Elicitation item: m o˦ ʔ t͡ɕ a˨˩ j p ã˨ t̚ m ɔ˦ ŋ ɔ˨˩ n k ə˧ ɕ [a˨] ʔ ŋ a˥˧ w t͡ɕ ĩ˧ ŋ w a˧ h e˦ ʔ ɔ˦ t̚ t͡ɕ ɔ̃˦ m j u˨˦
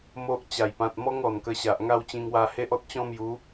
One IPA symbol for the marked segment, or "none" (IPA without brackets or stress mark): a˨